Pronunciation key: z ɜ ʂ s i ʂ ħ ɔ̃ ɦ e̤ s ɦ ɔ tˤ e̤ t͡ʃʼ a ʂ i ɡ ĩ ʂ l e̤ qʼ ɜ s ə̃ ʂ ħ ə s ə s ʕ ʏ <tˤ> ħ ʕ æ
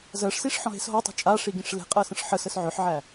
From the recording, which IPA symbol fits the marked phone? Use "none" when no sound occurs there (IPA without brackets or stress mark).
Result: none